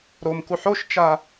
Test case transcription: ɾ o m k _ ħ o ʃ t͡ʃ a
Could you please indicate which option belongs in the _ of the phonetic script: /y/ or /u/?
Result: u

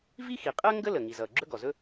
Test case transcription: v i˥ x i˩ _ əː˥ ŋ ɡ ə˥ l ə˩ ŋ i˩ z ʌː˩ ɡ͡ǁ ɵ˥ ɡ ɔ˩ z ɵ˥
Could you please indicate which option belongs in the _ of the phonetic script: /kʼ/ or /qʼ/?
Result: qʼ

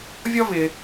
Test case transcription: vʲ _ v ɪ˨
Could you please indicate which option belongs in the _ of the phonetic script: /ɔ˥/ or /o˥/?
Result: ɔ˥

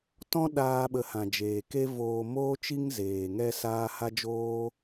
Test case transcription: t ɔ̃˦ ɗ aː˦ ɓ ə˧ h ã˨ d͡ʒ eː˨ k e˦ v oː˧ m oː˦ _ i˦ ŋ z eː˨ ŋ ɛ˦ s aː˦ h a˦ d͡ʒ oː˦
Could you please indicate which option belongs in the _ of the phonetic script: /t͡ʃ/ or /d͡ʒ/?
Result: t͡ʃ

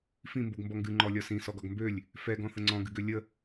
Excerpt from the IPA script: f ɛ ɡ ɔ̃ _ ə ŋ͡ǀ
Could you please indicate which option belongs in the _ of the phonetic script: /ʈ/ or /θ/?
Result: θ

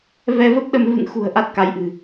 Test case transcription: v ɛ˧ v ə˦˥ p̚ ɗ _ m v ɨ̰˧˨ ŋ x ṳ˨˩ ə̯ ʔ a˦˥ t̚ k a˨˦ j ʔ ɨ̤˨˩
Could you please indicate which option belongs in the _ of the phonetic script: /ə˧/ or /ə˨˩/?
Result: ə˧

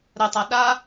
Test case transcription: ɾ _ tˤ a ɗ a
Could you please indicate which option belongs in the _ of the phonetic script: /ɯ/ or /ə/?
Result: ə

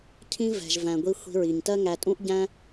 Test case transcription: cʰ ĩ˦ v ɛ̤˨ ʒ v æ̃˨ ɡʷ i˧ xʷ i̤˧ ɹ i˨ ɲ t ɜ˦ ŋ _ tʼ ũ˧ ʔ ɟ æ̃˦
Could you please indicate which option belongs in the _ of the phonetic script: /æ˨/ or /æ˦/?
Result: æ˨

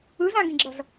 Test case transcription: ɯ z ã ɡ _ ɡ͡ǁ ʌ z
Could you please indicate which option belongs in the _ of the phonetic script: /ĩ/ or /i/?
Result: ĩ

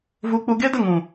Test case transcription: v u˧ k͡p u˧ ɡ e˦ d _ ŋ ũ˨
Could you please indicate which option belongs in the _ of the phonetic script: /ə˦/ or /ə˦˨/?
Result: ə˦˨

